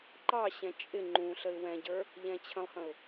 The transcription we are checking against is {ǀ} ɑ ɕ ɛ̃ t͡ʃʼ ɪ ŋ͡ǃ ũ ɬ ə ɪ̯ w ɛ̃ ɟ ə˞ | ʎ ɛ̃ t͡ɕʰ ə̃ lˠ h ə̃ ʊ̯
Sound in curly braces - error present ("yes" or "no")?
yes